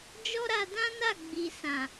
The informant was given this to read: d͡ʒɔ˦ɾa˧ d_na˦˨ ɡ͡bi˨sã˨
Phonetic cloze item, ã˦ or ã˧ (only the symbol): ã˦